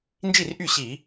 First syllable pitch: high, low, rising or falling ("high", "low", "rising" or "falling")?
falling